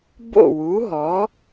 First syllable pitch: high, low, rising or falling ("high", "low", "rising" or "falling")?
falling